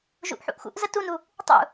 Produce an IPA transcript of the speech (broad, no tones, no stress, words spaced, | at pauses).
ʒṵʔħṵʔxṵʔ zətunu | tˤṵ